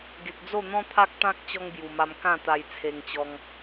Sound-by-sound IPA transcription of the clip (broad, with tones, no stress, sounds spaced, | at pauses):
ɡ e˨ k̚ d͡z o˥˧ n̪ ɔ̃˦ t̪ʰ a˦ k̚ t̪ ã˦ k̚ t͡ɕ ɔ˦ ŋ b j u˨˩ m a˧ m k ã˥˧ t̪ a˧ j t͡sʰ e˧ ŋ t͡ɕ ɔ˧ ŋ